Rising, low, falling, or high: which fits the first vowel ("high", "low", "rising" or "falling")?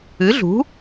rising